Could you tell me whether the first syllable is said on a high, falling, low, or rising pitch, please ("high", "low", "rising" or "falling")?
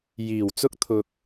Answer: low